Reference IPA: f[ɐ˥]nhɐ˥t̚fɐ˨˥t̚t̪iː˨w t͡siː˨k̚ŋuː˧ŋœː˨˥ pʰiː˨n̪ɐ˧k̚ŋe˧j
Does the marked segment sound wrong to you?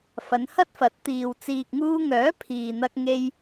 yes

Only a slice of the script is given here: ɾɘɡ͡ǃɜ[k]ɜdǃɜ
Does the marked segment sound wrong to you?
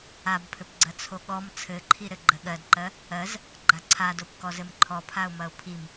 yes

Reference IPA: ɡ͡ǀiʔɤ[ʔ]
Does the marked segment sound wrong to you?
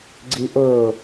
yes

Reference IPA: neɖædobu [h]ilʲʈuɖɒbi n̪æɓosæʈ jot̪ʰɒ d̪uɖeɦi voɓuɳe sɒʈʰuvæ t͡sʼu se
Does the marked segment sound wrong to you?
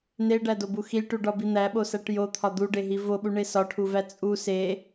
yes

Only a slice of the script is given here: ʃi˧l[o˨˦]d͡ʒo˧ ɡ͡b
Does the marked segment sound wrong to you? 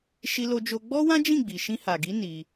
yes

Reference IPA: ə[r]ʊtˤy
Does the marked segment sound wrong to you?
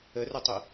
no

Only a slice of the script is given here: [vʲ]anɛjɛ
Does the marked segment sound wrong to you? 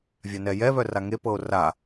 no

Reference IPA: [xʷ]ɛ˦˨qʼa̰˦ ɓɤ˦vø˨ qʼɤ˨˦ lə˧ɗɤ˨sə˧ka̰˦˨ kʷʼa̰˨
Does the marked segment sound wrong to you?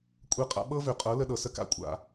yes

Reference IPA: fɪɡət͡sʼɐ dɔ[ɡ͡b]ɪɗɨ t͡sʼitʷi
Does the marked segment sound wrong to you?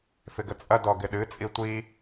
yes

